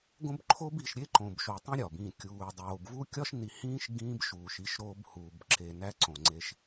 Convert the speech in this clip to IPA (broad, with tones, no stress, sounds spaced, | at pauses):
ɡ õ˦ b ǃʰ o˦ b i˨ ʃ ɾʲ e˦ ǃ õ˨ b ʃ o˨ tˤ ũ˦ ɾʲ ɒ˨ b ĩ˦˨ kʲ uː˨ dˤ oː˨ b v u˦ kʲ ɒ˦ ʃ n i˨ h ĩː˦ ʃ ɡ ĩː˦ b ʃ uː˨ ʃ i˦ ʃ ɾ oː˦ b h uː˨ b ǁ e˨ n æ˦ ǀ õ˨ ŋ͡ǀ e˦ ʃ